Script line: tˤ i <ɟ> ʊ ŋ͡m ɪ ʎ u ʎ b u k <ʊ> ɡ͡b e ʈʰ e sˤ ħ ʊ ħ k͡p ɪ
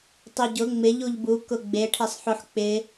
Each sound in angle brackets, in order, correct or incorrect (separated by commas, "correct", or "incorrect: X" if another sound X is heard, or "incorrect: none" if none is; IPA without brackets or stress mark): correct, correct